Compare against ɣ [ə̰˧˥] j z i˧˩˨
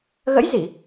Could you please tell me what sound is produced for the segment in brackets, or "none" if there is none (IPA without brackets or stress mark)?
ə̰˧˥